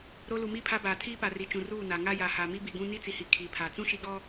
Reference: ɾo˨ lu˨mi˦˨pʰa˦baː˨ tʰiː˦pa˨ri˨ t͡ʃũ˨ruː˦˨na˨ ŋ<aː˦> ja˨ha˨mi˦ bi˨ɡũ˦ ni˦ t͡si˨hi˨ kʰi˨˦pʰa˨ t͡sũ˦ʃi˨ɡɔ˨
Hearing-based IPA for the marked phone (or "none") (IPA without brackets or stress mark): a˦